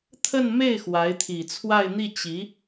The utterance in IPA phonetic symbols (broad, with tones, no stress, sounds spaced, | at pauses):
t̪ʰ ə˥˧ n m e˥˩ ɪ̯ x w a˧˥ ɪ̯ t̪ʰ i˨˩ t͡sʰ w a˥˧ ɪ̯ n̪ i˥˩ t͡ɕ i˧˥